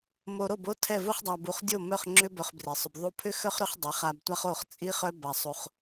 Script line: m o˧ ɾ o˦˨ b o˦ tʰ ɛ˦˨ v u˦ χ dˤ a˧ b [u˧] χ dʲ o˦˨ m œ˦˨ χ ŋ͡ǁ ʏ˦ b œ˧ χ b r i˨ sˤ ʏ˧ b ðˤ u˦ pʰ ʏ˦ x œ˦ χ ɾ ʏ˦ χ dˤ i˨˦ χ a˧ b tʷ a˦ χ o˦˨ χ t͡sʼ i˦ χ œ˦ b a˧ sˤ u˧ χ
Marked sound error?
no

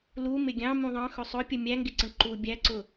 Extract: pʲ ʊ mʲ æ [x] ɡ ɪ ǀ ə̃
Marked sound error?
yes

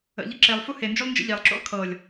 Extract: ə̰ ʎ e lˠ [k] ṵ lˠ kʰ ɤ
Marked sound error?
yes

